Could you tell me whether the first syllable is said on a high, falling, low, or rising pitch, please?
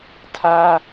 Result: high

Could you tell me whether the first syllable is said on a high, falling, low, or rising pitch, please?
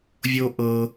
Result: high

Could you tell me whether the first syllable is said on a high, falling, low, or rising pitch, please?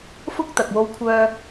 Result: high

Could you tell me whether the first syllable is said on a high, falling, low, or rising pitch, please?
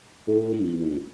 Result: high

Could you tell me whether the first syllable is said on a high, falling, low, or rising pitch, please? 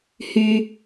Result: high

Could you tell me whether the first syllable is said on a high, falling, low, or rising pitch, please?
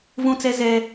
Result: high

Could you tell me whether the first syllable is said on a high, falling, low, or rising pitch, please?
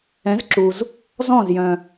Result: rising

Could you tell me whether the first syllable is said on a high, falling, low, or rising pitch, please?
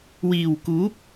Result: low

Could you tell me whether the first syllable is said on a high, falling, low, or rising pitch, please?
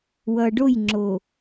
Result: low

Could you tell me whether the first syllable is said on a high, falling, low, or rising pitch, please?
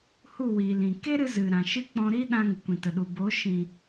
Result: falling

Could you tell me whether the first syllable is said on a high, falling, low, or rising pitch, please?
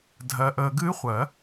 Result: low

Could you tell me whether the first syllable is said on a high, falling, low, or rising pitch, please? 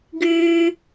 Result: high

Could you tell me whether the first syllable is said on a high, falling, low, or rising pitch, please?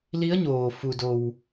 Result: rising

